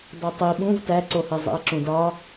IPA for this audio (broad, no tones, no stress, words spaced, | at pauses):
dˤutˤi ɓũv tæǀohe zˤḭɐ̯ǁũdɒ